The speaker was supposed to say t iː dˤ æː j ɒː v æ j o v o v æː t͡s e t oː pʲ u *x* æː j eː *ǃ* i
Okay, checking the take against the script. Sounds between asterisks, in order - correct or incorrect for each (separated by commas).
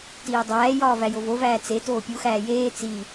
correct, incorrect